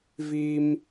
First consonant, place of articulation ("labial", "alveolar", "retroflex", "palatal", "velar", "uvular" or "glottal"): labial